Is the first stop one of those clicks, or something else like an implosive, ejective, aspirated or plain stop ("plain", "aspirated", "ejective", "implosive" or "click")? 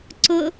click